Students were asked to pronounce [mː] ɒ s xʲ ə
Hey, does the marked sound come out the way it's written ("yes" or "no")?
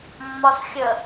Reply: yes